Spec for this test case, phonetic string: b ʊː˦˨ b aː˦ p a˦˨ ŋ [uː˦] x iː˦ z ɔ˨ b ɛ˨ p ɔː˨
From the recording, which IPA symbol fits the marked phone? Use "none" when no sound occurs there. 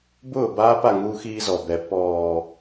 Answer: uː˦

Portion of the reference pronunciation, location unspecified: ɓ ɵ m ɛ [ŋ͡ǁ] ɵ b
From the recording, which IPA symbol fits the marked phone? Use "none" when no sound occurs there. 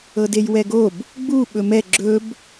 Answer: ɡ͡ǁ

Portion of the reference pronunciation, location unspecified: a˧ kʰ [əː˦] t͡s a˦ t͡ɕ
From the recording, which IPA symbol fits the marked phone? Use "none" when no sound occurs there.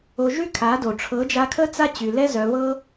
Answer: ə˦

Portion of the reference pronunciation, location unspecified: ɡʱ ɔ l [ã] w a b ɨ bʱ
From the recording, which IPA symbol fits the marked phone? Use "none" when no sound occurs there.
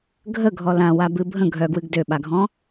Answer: ã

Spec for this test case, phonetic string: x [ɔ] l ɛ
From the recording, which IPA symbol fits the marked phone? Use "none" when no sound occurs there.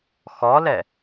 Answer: ɔ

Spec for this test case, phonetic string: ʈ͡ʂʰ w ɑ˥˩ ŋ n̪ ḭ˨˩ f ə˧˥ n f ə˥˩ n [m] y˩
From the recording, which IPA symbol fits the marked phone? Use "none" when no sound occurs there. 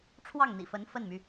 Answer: m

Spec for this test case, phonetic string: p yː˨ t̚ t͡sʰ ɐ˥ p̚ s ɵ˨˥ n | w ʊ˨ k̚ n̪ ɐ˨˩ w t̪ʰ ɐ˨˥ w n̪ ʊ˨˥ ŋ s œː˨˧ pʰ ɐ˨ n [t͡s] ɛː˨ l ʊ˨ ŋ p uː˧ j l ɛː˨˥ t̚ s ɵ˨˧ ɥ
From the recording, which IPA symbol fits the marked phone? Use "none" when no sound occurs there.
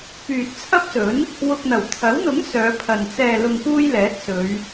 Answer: t͡s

